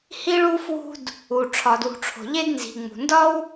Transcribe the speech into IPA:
hi˦ɭu˦ fwṳ˦d | u˩ ʈ͡ʂʰɒ˩dwṳ˩ʈ͡ʂʰo̤˩ ʎe˦dnzi̤˩ŋ͡mṳ˩ndɒ˥w

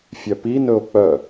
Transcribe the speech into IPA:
fʲœpi nɵo̯k͡pœ

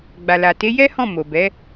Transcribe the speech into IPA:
ɡ͡ba˨la˨ te˨˦ jɛ˦hɔ̃˦˨ mo˨bɛ˨˦

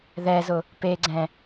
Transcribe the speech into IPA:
ðɛzʊ | peɡ͡ǀɛ̃

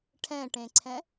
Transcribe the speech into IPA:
ʈʰɛ̃ʈẽǀʰɛ̃

